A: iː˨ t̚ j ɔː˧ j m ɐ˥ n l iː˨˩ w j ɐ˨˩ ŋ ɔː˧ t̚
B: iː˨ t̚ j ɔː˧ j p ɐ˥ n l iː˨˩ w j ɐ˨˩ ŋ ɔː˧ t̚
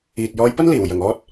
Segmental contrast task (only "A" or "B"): B